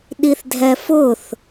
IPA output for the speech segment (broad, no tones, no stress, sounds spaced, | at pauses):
ɗ i θ dʱ ɛ f ʊ θ